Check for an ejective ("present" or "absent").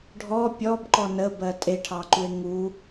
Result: present